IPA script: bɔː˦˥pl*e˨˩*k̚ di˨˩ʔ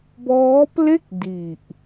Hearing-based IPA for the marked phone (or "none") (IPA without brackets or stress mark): e˥˩